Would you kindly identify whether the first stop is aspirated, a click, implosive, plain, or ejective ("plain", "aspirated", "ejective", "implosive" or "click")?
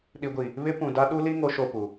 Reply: implosive